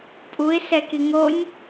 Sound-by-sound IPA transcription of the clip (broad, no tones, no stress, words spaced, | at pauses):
pʼuɪ̯ sɛkiŋonʲ